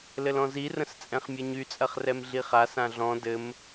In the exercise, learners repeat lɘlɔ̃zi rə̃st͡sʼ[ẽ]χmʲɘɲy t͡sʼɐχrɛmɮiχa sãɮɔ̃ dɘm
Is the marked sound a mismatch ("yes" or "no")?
yes